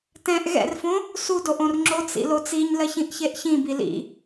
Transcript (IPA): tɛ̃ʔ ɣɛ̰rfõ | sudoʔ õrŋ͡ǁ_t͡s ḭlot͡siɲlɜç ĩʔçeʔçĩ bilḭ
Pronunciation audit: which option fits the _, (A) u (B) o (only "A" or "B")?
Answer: B